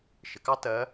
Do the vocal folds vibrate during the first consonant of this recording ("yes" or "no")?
no